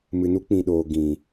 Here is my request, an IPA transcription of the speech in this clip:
m ɨ˨ n u˦ k͡p ĩ˨ ɗ oː˨ ɡ ĩ˨

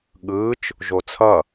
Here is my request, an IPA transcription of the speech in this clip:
ɠ ɯ t͡ʃ | ʒ o t͡sʰ ʌ

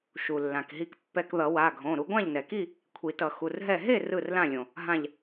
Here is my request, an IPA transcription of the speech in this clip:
ʃ u˩ lː ã˩ k ɦ i˧ k pː ɛ˧ k ð ʌ˨˩˦ w a˩˧˩ ɡʱ õ˩˧˩ ɾ u˧ ɡʷ ã˥˨ ʎ n ɛ˩ k i˥˨ | kʷʰ i˨˩˦ t ʌ˨˩˦ x u˩˧˩ r ɦ ɛ˥˨ ɦ e˥˨ r ɯ˥˨ r l ã˥˨ lʲ õ˩ | ɦ ã˧˩ ʎ

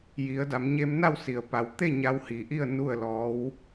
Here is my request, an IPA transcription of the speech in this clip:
j i˩˧ ə̯ d a˩˧ m ɲ e˧ m n a˥˨ w s i˩ ə̯ p a˩ w t̪ e˥˨ ɲ a˧ w h i˩ ʔ i˥˨ ə̯ n u˥˨ ə̯ l ɔː˧˥ w

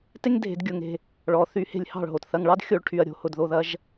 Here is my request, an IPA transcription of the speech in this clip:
t e˥ ŋ dʱ e̤˧˩˧ d ɡʲ ʊ˧˩ ŋ e̤˩˧˩ | ɭ ɔ˩ θ y˧˩˧ h e̤˧˩ lʲ h ɑ̤˧˩ ɭ ɦ o˩ t θ ɐ˩˧˩ ŋ ɭ ɑ˥ d xʲ o˧˩˧ ɭ ʈʰ y˩ ɐ̯ ɾʲ o̤˧˩˧ h ʊ˩ d ð o˩˧˩ ð ɐ˩˧˩ ʒ

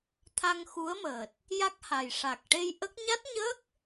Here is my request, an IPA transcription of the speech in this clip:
t̪ʰ a˧ ŋ x u˧˥ ə̯ m əː˨˩ t̚ | j a˦˥ k̚ h a˨˩ j ʂ a˨˩ k̚ ʈ e˧ j ʔ ə˦˥ k̚ ɲ a˦˥ t̚ ɲ əː˦˥ k̚

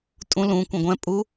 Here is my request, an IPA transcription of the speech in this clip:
tʼ ũ l ũ kʷ ɛ̃ ɡʷ ɛ̃ pʼ u

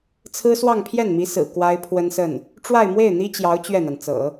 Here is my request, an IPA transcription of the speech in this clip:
t͡sʰ ɹ̩˥ s w ɑ˥˧ ŋ pʰ j ɛ˥˩ n m i˧˥ s ɹ̩˨˩ k w a˥ ɪ̯ pʰ w ə˥ n s ə˥˩ n | ʈ͡ʂ w a˥˧ ɪ̯ m w e˥˩ ɪ̯ n̪ i˥ t͡ɕ j ɑ˧˥ ʊ̯ t͡ɕ ɥ ɛ˥˩ n̪ a˩ n t͡s ɤ̰˨˩˦

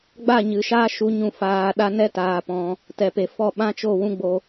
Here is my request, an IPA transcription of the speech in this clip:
ɡ͡b a˦˨ ɲ ɨ˨ ʃ aː˦ ʃ u˨˦ ɲ ũ˧ f aː˧ ɗ a˦ n ɛ˦ t aː˧ p ɔ̃˧ | t ɛ˨ p e˨ f ɔ˦˨ ɓ ã˦ t͡ʃ o˦˨ w ũ˦ ɡ͡b o˧

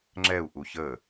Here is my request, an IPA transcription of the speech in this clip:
ŋ͡ǁ ɛ u̯ ʔ u ç ə

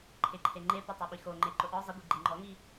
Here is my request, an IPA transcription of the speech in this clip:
ǃʰ ɪ ǃʰ e ŋ͡ǃ e p ʊ tˤ o ɓ i x o ŋ͡ǃ e ǃ ʊ ʔ ɔ zˤ ɪ ɡʷ i ɡ͡ǃ i ŋ͡ǃ ɔ ŋ i

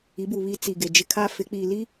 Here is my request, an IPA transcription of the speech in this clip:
i˨˦ b u˨ β i˦ t͡s i˨ ɡ e˨ d͡ʒ ɪ˦ kʰ a˦ f ɪ˨˦ k͡p iː˨ l i˦

